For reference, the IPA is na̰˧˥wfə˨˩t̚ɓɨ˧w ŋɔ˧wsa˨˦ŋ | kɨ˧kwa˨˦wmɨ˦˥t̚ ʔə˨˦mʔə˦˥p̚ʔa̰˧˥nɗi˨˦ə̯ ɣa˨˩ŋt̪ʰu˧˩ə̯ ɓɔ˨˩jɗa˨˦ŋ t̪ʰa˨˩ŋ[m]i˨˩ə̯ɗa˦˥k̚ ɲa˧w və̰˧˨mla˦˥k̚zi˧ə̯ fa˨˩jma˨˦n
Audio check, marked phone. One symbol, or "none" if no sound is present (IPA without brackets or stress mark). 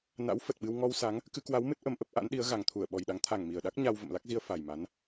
m